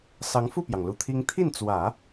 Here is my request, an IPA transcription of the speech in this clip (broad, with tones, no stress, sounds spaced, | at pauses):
s ɑ˧˥ ŋ f u˥˩ p j ɑ˩ ŋ l u˧˥ t̪ʰ i˥ ŋ t̪ʰ i˥˩ n t͡s w ä˨˩˦